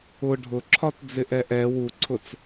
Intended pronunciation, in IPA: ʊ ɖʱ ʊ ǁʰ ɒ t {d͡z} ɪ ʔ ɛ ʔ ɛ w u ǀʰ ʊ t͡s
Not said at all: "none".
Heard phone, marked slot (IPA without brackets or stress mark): d͡z